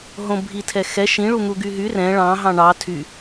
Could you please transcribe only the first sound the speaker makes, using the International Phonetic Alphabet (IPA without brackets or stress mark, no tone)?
ɦ